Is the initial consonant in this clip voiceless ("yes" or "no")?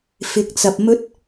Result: yes